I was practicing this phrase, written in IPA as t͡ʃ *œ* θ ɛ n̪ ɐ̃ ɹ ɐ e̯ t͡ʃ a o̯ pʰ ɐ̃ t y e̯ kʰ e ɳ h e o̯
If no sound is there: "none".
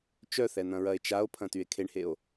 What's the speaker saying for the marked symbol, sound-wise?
œ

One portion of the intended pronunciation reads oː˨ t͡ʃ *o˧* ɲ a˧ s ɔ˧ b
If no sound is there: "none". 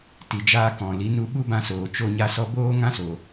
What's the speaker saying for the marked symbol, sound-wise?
o˧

